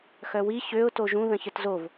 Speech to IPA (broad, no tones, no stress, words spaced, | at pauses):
xœwi çøʊ̯ toʒũ ðə̃çətzov